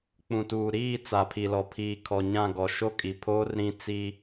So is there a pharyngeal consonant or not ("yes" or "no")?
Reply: no